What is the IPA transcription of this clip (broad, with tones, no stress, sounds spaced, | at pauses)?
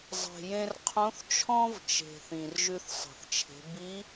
zˤ e̤˩ j ẽ˧ r qʰ õ˧˥ θ t͡ʃʰ ɔ̃˥ v t͡ʃ e̤˩ θ ĩ˩ r ʒ ʉ˧ θ sˤ e̤˩ θ t͡ʃʰ e̤˩˧ b i˧˥